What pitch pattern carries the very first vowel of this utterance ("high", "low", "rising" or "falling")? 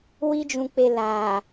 high